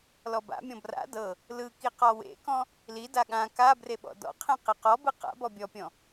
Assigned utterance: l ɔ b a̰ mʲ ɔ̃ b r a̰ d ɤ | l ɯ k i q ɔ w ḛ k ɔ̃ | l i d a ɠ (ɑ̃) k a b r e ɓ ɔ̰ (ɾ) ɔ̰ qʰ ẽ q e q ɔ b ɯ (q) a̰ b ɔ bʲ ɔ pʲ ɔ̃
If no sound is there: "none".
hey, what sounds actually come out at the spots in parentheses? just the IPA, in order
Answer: ã, d, q

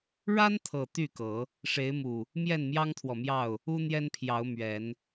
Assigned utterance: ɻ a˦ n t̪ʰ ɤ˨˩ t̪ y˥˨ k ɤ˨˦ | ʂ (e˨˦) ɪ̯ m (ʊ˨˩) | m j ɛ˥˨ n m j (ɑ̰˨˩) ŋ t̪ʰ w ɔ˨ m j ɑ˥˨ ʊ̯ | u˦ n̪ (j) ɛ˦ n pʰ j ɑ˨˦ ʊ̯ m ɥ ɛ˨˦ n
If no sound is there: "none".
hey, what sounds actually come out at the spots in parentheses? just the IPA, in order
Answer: e˨˦, u˨˩, ɑ˦, j

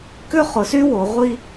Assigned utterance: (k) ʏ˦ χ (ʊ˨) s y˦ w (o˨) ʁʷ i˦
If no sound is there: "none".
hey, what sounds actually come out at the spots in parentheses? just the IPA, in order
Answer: k, ʊ˨, o˨

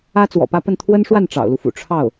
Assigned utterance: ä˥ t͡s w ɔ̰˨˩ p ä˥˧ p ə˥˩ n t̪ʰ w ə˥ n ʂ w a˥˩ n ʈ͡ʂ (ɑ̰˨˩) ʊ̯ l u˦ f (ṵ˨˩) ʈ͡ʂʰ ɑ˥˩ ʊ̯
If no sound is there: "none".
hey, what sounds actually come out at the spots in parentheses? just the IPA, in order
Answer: ɑ̰˨˩, ṵ˨˩

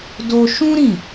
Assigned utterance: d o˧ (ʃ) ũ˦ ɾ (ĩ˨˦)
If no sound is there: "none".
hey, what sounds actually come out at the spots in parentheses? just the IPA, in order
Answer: ʃ, ĩ˦˨

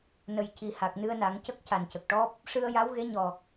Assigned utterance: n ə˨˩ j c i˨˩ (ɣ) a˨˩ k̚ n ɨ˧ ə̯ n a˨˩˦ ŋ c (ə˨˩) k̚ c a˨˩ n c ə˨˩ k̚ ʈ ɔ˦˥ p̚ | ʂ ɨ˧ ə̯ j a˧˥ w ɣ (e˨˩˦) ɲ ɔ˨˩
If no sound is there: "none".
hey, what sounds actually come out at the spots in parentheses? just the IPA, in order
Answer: h, ə˦˥, e˧˥

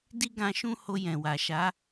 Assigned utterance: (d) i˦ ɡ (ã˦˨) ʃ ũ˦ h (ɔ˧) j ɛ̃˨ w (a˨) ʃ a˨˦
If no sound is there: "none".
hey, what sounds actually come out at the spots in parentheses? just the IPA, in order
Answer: d, ã˧, o˧, a˨

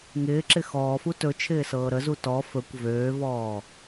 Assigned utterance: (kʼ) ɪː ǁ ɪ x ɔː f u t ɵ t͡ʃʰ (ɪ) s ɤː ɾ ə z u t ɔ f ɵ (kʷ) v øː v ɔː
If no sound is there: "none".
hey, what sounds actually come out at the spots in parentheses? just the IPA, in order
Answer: ŋ, ɪː, kʷ

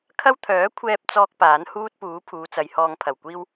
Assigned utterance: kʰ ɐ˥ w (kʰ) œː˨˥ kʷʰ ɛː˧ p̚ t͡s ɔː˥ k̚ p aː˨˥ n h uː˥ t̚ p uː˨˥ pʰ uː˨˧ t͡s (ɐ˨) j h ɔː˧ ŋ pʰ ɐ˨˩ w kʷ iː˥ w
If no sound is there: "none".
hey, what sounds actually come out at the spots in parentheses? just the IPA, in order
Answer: t̪ʰ, ɐ˨˧

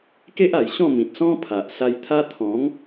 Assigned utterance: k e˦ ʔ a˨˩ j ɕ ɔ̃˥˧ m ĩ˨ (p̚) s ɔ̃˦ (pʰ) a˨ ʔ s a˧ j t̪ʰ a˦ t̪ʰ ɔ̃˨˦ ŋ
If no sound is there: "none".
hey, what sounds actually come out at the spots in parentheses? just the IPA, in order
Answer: t̚, pʰ

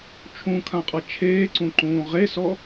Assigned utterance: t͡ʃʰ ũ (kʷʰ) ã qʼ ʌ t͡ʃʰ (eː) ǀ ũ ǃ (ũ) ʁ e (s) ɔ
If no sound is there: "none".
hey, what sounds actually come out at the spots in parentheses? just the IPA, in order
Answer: kʰ, eː, ũː, s

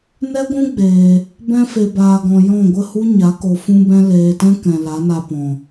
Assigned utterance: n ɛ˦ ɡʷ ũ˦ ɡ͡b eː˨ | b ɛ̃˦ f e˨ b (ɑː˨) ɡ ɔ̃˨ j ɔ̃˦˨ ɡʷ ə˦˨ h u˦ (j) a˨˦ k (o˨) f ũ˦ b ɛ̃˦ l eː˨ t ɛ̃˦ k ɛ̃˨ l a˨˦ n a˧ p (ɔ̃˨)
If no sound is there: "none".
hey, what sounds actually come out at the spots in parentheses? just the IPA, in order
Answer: aː˨, ɲ, o˨, ɔ̃˨

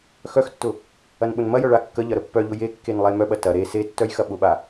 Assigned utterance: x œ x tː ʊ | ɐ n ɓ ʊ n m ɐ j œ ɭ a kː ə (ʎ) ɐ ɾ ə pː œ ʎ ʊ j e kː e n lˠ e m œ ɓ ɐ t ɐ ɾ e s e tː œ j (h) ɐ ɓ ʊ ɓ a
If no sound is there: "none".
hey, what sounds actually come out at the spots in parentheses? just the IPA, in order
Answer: ʎ, x

